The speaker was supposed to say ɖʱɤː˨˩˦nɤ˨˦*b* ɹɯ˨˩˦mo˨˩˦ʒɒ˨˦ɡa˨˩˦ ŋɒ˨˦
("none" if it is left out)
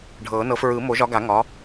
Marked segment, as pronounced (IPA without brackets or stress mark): f